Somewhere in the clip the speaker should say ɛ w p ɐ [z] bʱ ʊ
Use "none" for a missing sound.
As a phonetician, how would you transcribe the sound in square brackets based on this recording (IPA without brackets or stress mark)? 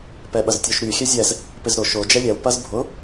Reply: z